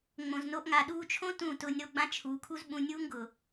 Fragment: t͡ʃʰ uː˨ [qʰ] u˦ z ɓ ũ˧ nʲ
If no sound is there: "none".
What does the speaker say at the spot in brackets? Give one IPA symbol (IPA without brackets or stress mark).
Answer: kʰ